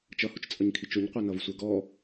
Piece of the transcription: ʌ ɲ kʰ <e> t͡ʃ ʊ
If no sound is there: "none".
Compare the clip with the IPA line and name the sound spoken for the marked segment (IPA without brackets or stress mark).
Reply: i